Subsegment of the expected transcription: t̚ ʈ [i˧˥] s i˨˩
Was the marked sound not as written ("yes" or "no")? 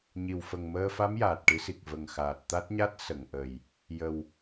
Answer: yes